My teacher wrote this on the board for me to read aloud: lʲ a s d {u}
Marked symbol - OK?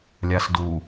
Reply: yes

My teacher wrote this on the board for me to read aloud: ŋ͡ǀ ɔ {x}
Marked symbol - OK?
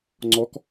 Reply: no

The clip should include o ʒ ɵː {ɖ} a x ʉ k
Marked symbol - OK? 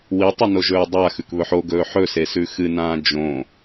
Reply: no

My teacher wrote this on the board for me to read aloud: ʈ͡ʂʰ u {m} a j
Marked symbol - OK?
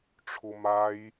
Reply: yes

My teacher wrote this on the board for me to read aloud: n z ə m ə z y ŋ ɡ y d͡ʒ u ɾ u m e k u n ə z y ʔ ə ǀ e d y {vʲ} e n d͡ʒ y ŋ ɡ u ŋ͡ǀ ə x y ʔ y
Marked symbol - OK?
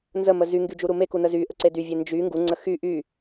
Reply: yes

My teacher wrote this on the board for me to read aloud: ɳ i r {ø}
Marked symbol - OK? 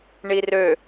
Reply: yes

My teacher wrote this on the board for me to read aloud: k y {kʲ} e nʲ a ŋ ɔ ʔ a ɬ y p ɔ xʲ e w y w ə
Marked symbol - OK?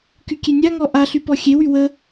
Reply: yes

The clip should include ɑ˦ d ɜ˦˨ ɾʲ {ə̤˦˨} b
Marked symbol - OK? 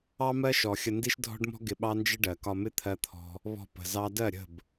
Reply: yes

